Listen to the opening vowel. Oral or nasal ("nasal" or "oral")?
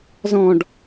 nasal